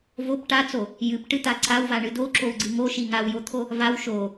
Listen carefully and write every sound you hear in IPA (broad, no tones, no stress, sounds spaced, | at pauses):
v o p ʈ a t͡s o | j ɨ p ʈ ɨ t̪ a ǀ a w v a ɳ ɨ d o ǁ o w ɡ͡ǀ ɨ ŋ o ʃ i ŋ a w j o t̪ʰ o | v a w ʃ o